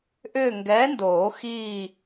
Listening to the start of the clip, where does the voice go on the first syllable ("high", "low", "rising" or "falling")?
falling